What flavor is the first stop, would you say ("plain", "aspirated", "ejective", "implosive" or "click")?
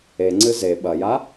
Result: click